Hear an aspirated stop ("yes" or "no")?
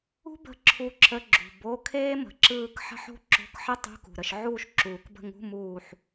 yes